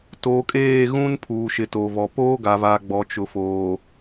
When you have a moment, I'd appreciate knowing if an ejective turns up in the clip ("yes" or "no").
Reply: yes